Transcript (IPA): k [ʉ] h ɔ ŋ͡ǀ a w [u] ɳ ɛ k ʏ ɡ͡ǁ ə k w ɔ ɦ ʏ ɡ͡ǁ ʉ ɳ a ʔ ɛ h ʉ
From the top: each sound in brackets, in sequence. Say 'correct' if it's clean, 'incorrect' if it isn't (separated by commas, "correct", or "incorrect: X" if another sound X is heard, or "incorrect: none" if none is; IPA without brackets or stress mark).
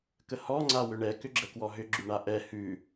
incorrect: ə, incorrect: ʏ